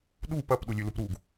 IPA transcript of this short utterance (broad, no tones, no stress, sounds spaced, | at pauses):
ɗ u p ɐ p ɗ u lʲ ʉ l u p ɾ u ɡ